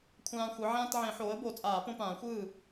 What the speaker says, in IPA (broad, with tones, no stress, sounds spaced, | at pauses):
kʷʰ ãː˦ xʷ ɯ˩˥ ʕ ãː˦ t ʕ ẽ˨˩˦ ħ oː˩˥ ə̯ b o˨˩˦ t͡sʼ aː˨˩˦ p õ˦ p ãː˨˩˦ xʷ ɯː˥˩